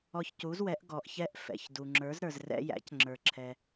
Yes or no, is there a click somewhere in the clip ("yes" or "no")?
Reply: yes